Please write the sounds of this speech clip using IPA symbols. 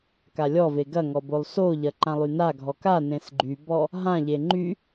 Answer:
k a lʲ ɔ v e ɡ ɐ ŋ ɔ b o lˠ s o ʎ ɐ ǃ ã lˠ y n a ɡʱ ɔ k a n ẽ s ɡ͡ǃ y b ɔ | ɦ ã ʎ e ŋ͡ǃ y

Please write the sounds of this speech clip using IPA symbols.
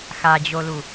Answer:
x a d͡ʑ o l u

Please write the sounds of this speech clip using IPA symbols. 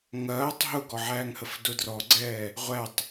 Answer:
ŋ ɐː tˤ ɦ ʊ ɡ ɔ ʕ æː ŋ h ə f d ʊ d r ɔ ɡ͡ǀ ɛː | ʁʷ æ tˤ

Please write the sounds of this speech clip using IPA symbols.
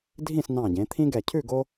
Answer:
dʱ ĩ˥˨ s n ɑ̃˧˩ ɟ ẽ˩˧ t̪ʰ ĩ˦ ɡ ɛ˧˩ cʰ ʉ˥˨ ɡ o˦

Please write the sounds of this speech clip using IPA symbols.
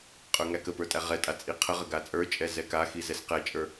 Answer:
qʼ ə˞ ŋ æ k ə p ə˞ tʼ æ ʁ ɛ tʼ a t͡sʼ i qʰ ə ʁ ə ɡ a t͡sʼ ə˞ t͡ʃʼ ɛ z ɛ k a x i z ɛ s q ɛ t͡ʃʼ ə˞

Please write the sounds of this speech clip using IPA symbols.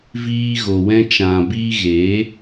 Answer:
v iː˧ ɣ o˨ w ɛ̃˧ t͡ʃ ã˨ b iː˧ ɣ eː˨˦

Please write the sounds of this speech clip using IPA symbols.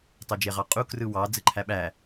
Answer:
tˤ o d͡ʒ e ʁ ɑ qʼ u k r ɯ w ɑ d͡z ɯ ǃʰ æ ɓ æ

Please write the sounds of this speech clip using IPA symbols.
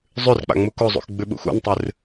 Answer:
zˤ ʉ r k͡p a̰ ŋ͡m u k o zˤ ṵ x ɡ͡b ʉ ɓ ṵ x ṵ n tˤ ɨ r

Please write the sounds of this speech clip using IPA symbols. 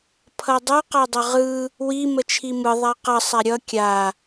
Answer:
pʰ ʌ dˤ ʌ q a dˤ ʌ ʁ ɯ | w i m ə t͡ʃʰ i m ɯ ðˤ a q ʌ sˤ a ɾʲ ʌ kʲ a

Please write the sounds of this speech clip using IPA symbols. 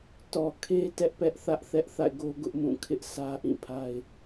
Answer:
t ɔ˨ kʰ e˦ t ɛ˦ ʔ p ɛ˦ ʔ θ ä˦ ʔ θ ɛ˦ ʔ θ a̰˦˨ ɪ̯ ɡ o˦ ɡ ʊ˦ ʔ m ũ˦˨ kʰ ɪ˦ ʔ sʰ ä˦ ʔ ĩ˦˨ pʰ a˦ ɪ̯

